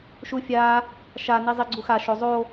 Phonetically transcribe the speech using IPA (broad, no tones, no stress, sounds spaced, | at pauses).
ʃ u fʲ a | ʃ a n i zˤ i ɡ͡ǀ u x a ʃ o zˤ o